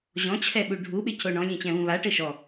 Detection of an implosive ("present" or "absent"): present